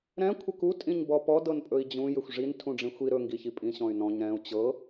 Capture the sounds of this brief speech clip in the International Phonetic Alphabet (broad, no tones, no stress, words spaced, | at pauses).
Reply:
ɾɛ̃ kʷʰəku tʼĩɲbɔpɔ dɤnpʼɵi̯d͡ʑũ jʏxʷʐin tʰũɖ͡ʐĩxʷi ɾɵ ŋɡiçipʼĩ ɕɔ̃y̯nɔ̃ɲ ɾɛ̃u̯ t͡ɕɤ